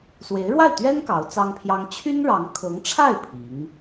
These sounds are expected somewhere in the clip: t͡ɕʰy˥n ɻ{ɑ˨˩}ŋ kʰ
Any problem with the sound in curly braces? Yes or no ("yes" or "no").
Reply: yes